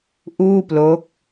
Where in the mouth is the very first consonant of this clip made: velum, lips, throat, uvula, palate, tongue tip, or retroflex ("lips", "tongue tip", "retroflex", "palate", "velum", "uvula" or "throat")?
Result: throat